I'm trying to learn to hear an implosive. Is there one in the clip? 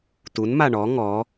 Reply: no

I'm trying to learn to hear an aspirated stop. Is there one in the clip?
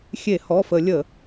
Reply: no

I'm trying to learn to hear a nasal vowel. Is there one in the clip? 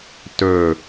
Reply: no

